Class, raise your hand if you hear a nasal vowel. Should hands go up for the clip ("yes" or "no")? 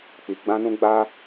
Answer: yes